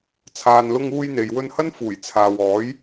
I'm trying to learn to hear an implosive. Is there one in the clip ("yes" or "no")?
no